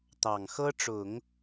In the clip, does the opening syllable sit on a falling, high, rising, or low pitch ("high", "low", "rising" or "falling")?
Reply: low